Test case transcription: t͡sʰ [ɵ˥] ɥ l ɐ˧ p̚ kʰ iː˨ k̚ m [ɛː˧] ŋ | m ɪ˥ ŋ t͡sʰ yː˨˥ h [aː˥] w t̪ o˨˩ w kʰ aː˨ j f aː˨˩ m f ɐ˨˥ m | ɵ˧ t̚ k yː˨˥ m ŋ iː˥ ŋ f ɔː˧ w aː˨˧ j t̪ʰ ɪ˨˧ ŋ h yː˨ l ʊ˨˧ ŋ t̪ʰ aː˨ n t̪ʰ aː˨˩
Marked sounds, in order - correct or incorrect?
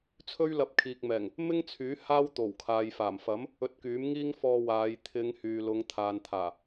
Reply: correct, incorrect: ɛː˨˩, correct

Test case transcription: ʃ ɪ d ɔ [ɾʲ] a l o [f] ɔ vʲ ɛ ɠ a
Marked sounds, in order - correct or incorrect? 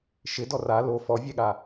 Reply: incorrect: r, correct

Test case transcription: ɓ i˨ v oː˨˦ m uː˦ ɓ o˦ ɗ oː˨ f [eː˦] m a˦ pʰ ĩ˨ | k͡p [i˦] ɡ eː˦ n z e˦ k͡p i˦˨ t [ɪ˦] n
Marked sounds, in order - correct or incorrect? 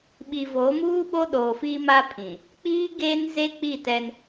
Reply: incorrect: iː˦, incorrect: iː˦, incorrect: ɛ˦

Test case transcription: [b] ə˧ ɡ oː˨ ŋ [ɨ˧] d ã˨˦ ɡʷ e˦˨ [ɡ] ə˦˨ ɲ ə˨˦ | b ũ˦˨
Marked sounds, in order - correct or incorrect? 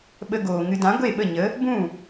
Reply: incorrect: ɓ, correct, incorrect: ɓ

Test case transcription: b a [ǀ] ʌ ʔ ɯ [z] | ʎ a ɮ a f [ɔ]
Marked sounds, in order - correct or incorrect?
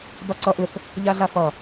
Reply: correct, incorrect: θ, incorrect: ʌ

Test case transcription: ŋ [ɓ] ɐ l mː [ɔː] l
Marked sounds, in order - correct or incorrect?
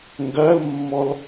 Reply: incorrect: ɡ, incorrect: ɔ

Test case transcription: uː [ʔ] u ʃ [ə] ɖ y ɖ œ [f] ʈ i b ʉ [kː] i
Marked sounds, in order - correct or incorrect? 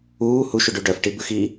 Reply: incorrect: h, incorrect: ʉ, correct, incorrect: x

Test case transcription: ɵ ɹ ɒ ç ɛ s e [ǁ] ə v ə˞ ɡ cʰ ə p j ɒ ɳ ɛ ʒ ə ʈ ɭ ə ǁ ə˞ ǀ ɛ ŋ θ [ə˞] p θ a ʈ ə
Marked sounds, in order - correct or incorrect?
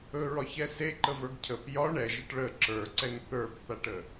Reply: incorrect: ǃ, correct

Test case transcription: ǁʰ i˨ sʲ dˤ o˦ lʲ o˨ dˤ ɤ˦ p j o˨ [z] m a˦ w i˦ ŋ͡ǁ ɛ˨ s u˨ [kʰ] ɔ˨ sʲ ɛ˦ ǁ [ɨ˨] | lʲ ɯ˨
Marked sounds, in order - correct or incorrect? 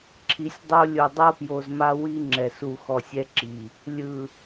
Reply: correct, incorrect: x, incorrect: i˨

